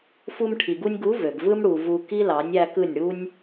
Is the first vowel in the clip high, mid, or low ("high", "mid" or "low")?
high